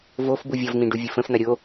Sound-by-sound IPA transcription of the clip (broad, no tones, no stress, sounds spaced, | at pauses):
v o f b u vʲ ɒ v n̪ ĩ ɖ u vʲ ə f ə̃ f n̪ ɐ ɾʲ o